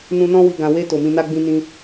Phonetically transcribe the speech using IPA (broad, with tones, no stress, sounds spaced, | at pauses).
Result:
n ũ˧ n ɔ̃˦ w i˧ ɡ ã˨ w e˧ t o˨ m ĩ˧ n a˦ ɡ͡b ĩ˦ n ĩ˧